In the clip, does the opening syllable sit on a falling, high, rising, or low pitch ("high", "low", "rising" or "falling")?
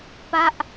falling